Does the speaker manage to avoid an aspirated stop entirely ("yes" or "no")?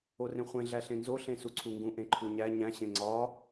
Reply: no